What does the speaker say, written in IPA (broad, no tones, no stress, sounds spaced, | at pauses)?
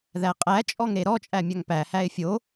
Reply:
ð æ qʼ æ t͡ʃʼ ɔ ŋ ɾ e ɾ ɔ t͡ʃʼ æ mʲ a ŋ p æ h æ ɪ̯ fʲ o